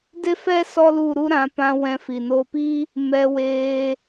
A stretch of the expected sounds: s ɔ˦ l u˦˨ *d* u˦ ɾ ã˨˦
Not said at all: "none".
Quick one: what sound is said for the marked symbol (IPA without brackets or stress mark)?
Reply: ɾ